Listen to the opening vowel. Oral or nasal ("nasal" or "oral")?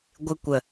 oral